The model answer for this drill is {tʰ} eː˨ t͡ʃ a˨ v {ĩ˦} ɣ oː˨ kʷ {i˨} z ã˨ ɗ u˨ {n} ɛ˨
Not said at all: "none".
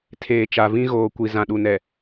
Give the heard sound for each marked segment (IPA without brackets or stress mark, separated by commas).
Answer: tʰ, ĩ˦, i˨, n